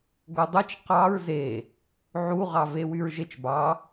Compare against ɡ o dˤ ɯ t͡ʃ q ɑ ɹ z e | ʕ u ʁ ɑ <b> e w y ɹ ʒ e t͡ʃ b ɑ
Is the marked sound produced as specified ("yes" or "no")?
no